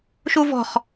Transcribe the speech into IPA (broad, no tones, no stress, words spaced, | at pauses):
ʃuvɔ̤χ